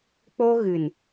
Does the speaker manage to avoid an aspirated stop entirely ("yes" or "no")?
yes